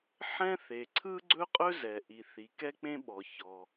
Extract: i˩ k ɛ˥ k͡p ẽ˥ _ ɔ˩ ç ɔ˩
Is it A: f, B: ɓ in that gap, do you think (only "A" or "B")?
B